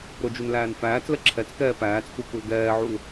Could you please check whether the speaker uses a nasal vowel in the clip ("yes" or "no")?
no